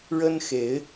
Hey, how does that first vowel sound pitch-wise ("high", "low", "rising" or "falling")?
high